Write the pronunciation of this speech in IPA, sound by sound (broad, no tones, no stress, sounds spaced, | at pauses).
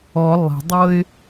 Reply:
ɔ lˠ e̤ dˤ ɤ ɪ̯